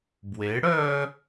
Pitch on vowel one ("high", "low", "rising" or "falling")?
rising